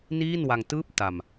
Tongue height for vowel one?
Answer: high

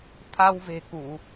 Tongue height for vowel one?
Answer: low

